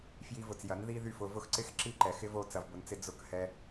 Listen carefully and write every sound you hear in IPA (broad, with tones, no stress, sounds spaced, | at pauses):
f j i˧ v ʊ˨ t͡s j ɐ˨˦ n ð i˦ ð y˦˨ f ʊ˧ v ʊ˦ x ǀ ɪ˦ x ǁ i˦ ǃ ɛ˨ x ɪ˦ v o˧ t͡s ɐ˧ v b ʊ˧ n t͡s ɪ˦ d͡z ʊ˦˨ k h ɛ˦